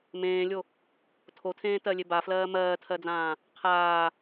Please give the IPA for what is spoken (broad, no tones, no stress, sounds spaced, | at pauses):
m ẽː lʲ o | tʰ o tʰ ẽː t ɜ lʲ e b a f l ɜː m ɜː tʰ ɜ d͡z ãː | qʰ aː